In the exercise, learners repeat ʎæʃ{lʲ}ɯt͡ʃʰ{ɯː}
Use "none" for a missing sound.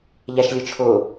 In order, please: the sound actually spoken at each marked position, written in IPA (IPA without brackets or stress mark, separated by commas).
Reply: lʲ, ʊː